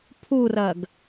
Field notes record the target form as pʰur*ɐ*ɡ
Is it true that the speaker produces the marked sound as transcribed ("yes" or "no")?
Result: yes